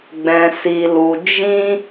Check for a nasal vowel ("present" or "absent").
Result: present